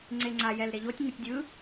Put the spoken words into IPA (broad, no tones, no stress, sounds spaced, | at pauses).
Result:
ŋ͡ǀ e ŋ͡ǀ a j ɛ l ɾ e ʎ o tʲ ŋ ɯ tʲ dʲ ɯ